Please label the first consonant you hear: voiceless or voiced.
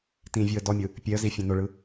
voiceless